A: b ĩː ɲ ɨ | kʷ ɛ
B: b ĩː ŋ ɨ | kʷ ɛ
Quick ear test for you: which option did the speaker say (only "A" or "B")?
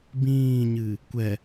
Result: A